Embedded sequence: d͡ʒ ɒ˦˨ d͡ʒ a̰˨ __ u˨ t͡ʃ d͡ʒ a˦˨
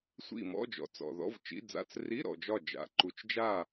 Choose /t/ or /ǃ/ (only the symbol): ǃ